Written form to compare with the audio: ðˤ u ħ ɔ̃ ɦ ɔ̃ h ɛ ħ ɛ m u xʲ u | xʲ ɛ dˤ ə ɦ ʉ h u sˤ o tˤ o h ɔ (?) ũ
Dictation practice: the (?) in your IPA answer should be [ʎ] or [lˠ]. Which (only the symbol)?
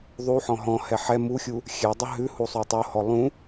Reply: lˠ